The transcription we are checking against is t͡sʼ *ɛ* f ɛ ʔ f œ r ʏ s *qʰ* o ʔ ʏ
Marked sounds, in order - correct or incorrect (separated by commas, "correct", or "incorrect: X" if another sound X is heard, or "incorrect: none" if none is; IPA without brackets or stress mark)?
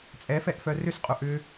correct, incorrect: qʼ